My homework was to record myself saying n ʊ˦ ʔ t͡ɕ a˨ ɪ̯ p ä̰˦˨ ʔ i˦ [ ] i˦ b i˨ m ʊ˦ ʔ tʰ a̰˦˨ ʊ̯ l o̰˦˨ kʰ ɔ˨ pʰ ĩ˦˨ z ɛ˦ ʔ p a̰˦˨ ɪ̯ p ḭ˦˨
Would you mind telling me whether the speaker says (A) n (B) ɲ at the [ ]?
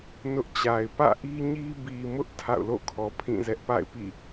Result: B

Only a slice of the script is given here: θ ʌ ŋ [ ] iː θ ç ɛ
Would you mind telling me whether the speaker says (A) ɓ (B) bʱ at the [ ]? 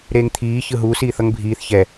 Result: B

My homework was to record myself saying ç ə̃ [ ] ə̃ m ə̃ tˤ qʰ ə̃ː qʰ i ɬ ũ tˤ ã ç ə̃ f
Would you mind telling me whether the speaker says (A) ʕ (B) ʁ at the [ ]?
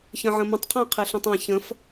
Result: A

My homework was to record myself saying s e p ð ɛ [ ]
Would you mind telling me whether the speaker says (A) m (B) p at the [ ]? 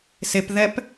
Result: B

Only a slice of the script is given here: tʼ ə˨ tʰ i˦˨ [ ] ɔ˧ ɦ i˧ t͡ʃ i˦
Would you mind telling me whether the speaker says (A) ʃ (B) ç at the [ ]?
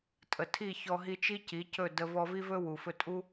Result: B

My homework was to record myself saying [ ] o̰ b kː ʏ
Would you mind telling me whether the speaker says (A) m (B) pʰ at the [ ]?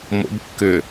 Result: A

